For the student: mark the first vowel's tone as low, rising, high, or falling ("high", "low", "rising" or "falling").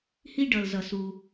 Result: high